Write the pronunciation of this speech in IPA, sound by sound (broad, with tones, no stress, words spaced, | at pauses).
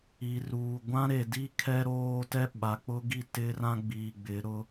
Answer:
i˨ruː˨ ɡʷã˦ɾe˨di˦ kʰɛ˦ɾoː˦tɛ˦ ɓa˨k͡pʊ˦ɡi˦˨ tɪ˦rã˦ ɡ͡biː˨ɡ͡bɪ˨˦ɾʊ˦